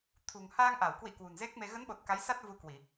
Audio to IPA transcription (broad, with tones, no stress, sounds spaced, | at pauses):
t̪ʰ ṳ˨˩ ŋ h a˧ ŋ ʔ a˧˩ w k w ḭ˧˨ k w ṳ˨˩ n z e˦˥ k̚ m e˧ ɣ ə˨˦ n ɓ o˨˩ t̚ k a˨˦ j s a˦˥ t̚ v u˧ k w i˧˩˨